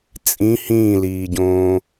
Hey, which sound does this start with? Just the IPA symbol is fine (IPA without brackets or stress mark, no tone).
t͡sʼ